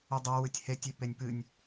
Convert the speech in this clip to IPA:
udˤa wɨtʲhetʲe penʲpɨnʲ

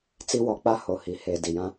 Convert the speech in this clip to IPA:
t͡si˦wɔ˨˦k͡pa˦ ho˨hi˨˦ he˨ di˨jã˦

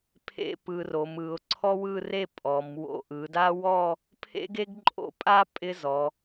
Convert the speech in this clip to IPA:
pʰḛ˥ pɯ˧ ro˩˧mɯ˩˧ʊ̯ ǀʰɔ˥wɯ˥˧re˥˧ pʼɔ˩˧m wo̰˧ʔɯ˩˧da˥ wɔ˥˧ | pʰḛ˥ɡe˥ɡǃʼo̰˥pʼa˥ pʼɪ˥zɔ˩˧

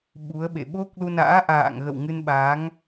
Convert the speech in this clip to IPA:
ɓu˨˦ə̯ɓḛ˧˨ ɓo˦˥k̚lu˧na̰ː˧˥ ʔa̰ː˧˨ŋɣə̰˧˨w ŋɨ˧nɓa˨˦ŋ

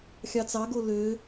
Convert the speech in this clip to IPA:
xʲɑt͡sɑɡo lø

